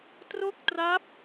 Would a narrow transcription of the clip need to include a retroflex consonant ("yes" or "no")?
no